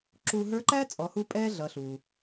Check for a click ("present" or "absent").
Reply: present